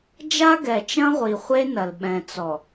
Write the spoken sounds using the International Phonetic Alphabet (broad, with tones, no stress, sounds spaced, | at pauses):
d͡ʒ a˦ ɡ ɛ˨ t͡ʃ ɐ̃˦ ʁʷ i˨ χʷ e˦ n ɐ˨ l ɓ ɛ̃˨ t͡s ɔ˨